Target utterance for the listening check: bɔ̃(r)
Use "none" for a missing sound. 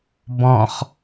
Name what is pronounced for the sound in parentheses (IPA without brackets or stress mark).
χ